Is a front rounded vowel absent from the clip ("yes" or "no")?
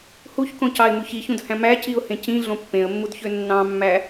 no